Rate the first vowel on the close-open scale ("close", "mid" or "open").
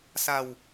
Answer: open